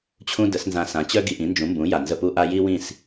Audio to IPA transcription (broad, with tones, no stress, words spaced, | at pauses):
t͡ɕʰũ˥də˩˥s nzã˧ sã˩˥t͡ɕœ˥ ɡi˧ʔĩ˩˥nd͡ʒũ˩˥mbũ˩˥ ja˩nzə˥˩pu˥ʔa˥ ji˥wĩ˥˩s